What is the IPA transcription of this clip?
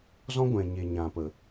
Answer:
z ɔ̃˦ ɡʷ ɛ̃˨ ɲ e˨ ɲ ã˨ p ə˨

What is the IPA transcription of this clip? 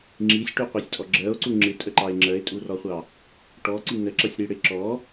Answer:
ŋ͡ǁ i sʲ ʈ u qʷ ɛ sʲ tʼ ɔ ɡ͡ǁ ɜ o̯ ǀ u ŋ͡ǁ ɪ tʼ ə ǃ ɑ e̯ ŋ͡ǁ ɜ e̯ tʼ u r ɔ χʷ ɑ | ʈ ɔ ǀ i n ə ǁ ʌ sʲ ɾ i ɽ ɪ ǁ ɔ

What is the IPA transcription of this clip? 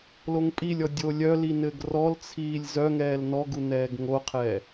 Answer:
l o ŋ pʼ i lʲ ɔ dʲ o lʲ œ l i n ɘ ɡ r ɔ l t͡sʰ iː lʲ z œ ŋ ɛː l n ɔ ɡ u n ɛː ɡ ŋ o qʰ ɛ

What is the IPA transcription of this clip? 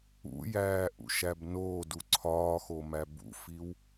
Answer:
ṵ j æː ʔ ṵ ʃ æ b n oː d u ǀʰ ɒː x o m æ b ṵ f i w

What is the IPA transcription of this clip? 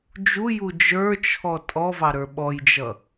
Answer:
d͡ʒ u j u d͡ʒ ə˞ t͡ʃʰ ɔ tʼ ɔ v ɑ ɾ ə˞ ɓ ɔ j d͡ʒ ʌ

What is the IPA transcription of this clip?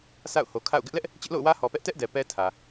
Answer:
sʰ a̰˦˨ ʊ̯ h o˨ kʰ a̰˦˨ ʊ̯ ɡ ɪ˦ ʔ l ɛ˦ ʔ | t͡ɕ ɪ˦ ʔ l o̰˦˨ ʊ̯ w ä˦ h ɔ˨ p ɛ˦ ʔ t ɛ˦ ʔ d ɛ˨ p ɛ˦ tʰ ä˨

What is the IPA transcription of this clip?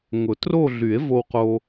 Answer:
ŋ ʊ˨˩˦ t r o˥˧ ɮ y˨˩˦ e̯ v o˧ w q o˧

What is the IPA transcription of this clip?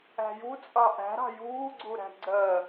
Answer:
æ̤ j u t͡sʼ ɑ ʔ æ̤ ɾ ɑ̤ j uː ɡ͡ǀ u ɾ æ̤ ɡ͡ǀ ɜ

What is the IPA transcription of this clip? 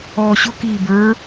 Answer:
ɔː ɕ ʊ k iː b ə˞

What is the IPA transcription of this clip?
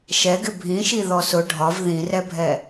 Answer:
ʃ ɛ ɡ ɪ bʱ ĩ ʃ i ð ɔ s ʊ ɖʱ ɒ v ð ĩ r ɛ bʱ ɛ

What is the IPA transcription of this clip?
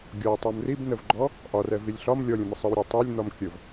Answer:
ɡʲ ɒ tˤ o m r i b n ə v ɡ͡ǃ ɔ | ʔ ɒ r ɛ v i lʲ ɬ ɒ m lʲ ɔ lʲ ə̃ m ə sˤ ɯ w ɾʲ e tˤ ɛ lʲ n̪ ɒ m kʲ ə v

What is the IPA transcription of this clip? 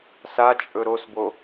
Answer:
s a t͡ʃʼ ɵ ɾ o s b o

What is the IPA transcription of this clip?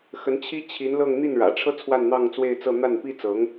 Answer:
x ə˧˥ n t͡ɕʰ i˥ t͡ɕʰ i˧˥ n l ɤ˥˧ ŋ n̪ i˥˩ n ɻ ä̰˨˩ ʈ͡ʂʰ ɤ˥ t͡sʰ w a˥˧ n n̪ ɑ˥˧ ŋ t͡s w e˥˧ ɪ̯ t͡s ɤ˥˧ n̪ a˥˩ n p i˥ t͡s ɤ˧˥ ŋ

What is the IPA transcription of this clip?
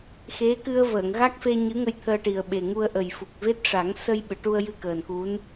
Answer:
x e˧˥ k ɨ˧ ə̯ v əː˨˩˨ ŋ ɣ a˦˥ k̚ f e˧ ɲ ɨ˧˥ ŋ ə˧ j t̪ʰ əː˧ ʈ i˨˩ ə̯ ɓ e˨˩ ŋ u˧ ə̯ ʔ ə˨˩ j f u˨˩ k̚ v e˦˥ t̚ ʂ a˨˩˦ ŋ s ə˧ j ɓ ɨ˨˩˨ ʈ u˧ ə̯ j ɨ˧ k əː˨˩ n k u˧˥ n

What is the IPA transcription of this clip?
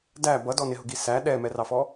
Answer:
d æ b ʌ d ɔ n ɪ ɦ ʊ ɡ i s æ ɗ ɛ m ɛ r ɑ f ɔ

